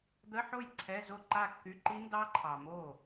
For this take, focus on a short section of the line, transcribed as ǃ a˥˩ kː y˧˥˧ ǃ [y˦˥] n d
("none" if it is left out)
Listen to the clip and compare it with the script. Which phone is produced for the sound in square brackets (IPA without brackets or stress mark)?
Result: i˦˥